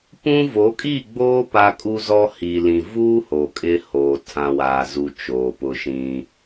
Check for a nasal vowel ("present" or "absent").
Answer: present